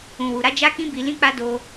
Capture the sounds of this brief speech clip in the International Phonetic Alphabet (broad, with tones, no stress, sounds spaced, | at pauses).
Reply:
ũ˨ w u˨ ɾ a˨˦ d͡ʒ a˦ k ĩ˦ b i˧ l ĩ˦ k͡p a˦ d o˧